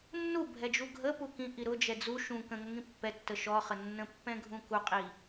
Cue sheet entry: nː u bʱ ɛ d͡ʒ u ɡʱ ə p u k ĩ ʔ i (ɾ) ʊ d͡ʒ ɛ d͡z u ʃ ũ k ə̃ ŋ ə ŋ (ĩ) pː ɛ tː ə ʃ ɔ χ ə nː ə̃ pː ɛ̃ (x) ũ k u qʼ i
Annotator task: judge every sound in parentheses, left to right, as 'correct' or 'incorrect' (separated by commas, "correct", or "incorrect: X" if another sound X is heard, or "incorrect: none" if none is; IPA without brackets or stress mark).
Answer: correct, correct, incorrect: ɡʱ